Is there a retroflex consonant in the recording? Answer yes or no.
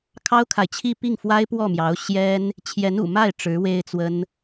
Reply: yes